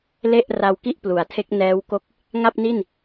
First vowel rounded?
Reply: no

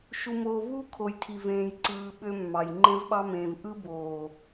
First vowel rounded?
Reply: yes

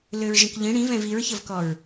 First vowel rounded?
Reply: yes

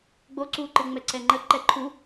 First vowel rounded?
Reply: yes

